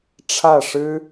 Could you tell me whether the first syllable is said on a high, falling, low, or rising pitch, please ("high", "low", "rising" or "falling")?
falling